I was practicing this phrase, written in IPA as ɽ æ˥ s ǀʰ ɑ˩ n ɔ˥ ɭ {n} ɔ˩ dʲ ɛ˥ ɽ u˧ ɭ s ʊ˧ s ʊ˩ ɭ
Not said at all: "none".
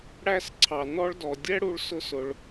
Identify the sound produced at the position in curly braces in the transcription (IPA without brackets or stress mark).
d